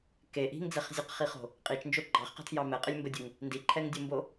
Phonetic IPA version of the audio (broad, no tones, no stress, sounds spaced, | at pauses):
k e ʔ i̤ ŋ d͡z ɛ χ zʲ ɘ q χ i χ o̤ | qʼ i t͡ʃ n d͡ʒ o ɡ͡ǃ ɑ χ q ə̤ tʰ j ɑ m ɛ qʼ ɘ lʲ m b ə dʲ ɘ ŋ | n d i ǃʰ ɛ ŋ dʲ u m b o